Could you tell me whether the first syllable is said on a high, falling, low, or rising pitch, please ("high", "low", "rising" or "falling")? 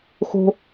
high